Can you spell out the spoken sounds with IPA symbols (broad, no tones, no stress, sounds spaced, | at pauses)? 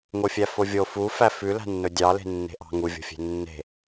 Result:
ŋ o fʲ æ f o vʲ o f u f æ f ʉ l æ̤ nː ɵ dʲ ɑ l e̤ nː e̤ ʔ ɑ̤ ŋ u vʲ o̤ fʲ e̤ nː e̤